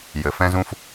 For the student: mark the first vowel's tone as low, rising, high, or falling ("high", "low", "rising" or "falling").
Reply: low